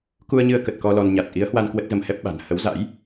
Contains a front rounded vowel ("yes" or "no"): no